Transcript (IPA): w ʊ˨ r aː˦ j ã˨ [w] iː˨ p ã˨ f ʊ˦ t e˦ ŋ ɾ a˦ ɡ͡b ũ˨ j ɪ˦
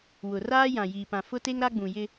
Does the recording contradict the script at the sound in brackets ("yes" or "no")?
yes